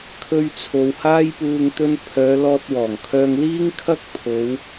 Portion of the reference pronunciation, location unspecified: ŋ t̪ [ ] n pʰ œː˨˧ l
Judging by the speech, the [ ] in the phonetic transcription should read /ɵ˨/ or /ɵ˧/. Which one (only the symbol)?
ɵ˧